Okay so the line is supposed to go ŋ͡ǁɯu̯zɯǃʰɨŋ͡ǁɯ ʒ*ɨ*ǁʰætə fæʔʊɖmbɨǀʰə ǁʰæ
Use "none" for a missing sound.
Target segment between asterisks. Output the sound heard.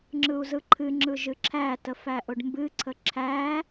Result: ɨ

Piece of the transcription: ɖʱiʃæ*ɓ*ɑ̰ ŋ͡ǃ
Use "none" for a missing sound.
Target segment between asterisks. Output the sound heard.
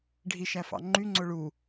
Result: f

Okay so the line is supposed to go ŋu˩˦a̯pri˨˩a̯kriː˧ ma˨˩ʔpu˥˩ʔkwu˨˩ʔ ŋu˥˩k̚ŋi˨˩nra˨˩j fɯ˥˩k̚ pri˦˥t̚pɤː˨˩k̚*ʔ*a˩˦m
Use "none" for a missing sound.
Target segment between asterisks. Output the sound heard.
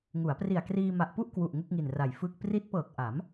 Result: ʔ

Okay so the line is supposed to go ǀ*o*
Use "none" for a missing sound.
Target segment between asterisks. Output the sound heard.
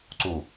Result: u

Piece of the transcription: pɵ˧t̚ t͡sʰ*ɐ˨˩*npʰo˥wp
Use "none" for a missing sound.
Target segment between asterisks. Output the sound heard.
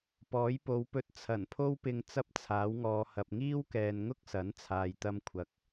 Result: ɐ˨˩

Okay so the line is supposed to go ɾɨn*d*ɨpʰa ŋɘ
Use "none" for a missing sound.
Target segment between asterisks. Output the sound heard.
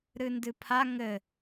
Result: d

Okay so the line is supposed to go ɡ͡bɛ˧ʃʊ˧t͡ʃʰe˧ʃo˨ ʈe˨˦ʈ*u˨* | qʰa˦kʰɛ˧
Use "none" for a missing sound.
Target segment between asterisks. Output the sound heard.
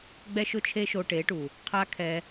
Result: u˨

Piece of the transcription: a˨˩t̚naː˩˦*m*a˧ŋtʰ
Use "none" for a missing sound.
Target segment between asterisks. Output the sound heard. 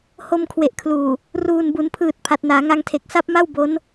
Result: ŋ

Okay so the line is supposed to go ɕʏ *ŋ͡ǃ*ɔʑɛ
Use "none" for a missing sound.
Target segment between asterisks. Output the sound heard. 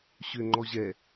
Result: ŋ͡ǃ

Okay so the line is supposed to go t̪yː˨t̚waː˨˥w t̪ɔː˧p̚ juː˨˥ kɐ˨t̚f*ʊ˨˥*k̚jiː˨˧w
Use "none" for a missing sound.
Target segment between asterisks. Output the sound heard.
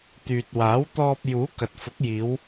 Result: ʊ˨˥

